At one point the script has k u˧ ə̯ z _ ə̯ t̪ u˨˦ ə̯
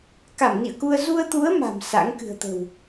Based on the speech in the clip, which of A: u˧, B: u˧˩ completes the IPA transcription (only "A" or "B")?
A